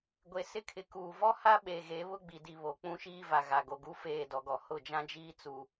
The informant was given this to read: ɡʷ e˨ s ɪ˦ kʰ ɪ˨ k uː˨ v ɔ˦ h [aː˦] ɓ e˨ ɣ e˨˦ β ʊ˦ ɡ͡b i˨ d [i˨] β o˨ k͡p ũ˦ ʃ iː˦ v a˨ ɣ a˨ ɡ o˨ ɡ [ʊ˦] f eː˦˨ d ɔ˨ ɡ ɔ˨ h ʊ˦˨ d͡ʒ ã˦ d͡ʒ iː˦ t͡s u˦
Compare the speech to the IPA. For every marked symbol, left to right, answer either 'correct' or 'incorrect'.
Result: incorrect, correct, incorrect

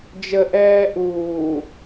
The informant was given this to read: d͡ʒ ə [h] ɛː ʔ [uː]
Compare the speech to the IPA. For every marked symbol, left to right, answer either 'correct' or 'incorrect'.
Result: incorrect, correct

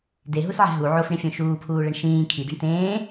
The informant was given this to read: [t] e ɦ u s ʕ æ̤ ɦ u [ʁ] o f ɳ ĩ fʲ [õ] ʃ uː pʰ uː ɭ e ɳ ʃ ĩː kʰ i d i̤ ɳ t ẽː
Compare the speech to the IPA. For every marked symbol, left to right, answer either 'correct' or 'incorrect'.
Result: incorrect, incorrect, correct

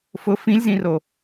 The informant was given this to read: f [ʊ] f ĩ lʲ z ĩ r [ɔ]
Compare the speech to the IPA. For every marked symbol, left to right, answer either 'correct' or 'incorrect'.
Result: correct, incorrect

